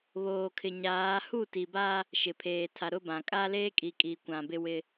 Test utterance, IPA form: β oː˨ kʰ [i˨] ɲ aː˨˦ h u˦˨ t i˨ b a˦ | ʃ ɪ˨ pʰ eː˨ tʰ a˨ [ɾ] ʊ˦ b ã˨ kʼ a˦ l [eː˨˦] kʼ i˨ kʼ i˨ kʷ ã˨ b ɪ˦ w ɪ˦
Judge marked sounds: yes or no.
no, yes, no

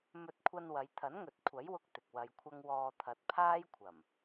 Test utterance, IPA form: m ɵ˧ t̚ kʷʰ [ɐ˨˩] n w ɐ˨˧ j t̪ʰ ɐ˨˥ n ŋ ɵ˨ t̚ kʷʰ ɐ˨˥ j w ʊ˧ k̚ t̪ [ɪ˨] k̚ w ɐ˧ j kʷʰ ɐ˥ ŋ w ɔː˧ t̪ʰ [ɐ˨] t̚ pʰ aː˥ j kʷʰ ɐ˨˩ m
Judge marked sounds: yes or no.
no, yes, no

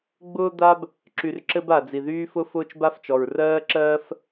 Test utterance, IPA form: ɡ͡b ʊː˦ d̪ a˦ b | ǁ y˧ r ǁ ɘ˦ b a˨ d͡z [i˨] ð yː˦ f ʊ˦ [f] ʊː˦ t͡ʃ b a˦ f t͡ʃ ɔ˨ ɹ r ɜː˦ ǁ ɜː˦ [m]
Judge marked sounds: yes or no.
yes, yes, no

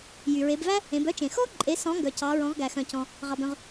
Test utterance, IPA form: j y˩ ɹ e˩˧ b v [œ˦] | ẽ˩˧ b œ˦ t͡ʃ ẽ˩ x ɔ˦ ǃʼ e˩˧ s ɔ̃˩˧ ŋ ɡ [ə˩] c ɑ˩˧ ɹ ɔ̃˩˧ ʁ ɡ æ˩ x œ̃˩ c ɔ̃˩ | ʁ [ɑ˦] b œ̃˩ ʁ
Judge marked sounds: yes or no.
no, no, no

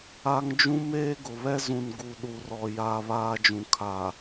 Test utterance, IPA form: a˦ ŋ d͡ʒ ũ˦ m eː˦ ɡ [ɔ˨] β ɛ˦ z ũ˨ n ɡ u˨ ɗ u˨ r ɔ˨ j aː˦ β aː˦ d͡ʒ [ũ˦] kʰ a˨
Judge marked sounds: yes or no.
no, no

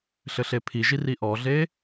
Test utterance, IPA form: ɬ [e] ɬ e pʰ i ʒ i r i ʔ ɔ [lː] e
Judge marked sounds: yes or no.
no, no

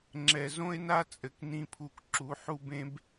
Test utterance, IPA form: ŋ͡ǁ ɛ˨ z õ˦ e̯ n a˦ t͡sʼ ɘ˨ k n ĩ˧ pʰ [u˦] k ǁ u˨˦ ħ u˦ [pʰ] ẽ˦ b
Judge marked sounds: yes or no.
no, no

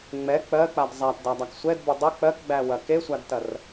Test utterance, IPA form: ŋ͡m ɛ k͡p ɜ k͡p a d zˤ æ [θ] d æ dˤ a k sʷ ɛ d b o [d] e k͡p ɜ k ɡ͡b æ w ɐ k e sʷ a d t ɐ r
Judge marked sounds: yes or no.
no, no

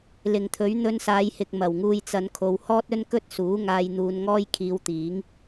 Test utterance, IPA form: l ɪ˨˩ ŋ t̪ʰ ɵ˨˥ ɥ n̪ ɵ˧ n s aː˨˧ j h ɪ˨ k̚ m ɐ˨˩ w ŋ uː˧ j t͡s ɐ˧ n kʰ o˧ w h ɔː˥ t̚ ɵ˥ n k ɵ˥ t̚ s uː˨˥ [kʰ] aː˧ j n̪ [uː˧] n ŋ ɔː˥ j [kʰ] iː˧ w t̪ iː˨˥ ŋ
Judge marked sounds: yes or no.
no, yes, yes

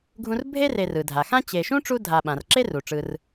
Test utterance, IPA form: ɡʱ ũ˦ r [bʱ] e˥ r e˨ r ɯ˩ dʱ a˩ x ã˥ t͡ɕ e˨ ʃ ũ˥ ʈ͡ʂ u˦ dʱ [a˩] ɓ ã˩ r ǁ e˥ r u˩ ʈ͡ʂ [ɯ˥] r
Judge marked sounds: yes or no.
yes, no, no

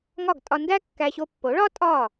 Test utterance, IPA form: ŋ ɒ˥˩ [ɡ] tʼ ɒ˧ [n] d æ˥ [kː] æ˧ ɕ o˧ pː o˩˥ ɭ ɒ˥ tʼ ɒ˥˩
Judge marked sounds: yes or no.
yes, yes, yes

